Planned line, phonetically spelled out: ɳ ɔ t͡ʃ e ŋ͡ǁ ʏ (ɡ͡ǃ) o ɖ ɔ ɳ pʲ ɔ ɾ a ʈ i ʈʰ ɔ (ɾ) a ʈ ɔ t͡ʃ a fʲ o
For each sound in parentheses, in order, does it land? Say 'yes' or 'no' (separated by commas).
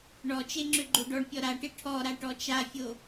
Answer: yes, yes